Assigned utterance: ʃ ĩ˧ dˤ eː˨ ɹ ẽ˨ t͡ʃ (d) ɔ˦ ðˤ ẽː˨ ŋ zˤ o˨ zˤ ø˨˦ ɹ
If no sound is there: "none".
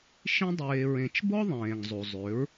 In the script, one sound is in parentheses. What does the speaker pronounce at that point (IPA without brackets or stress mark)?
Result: b